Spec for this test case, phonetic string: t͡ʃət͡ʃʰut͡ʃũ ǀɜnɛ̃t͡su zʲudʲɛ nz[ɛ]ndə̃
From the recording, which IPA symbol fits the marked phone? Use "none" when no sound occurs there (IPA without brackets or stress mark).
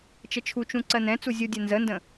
ə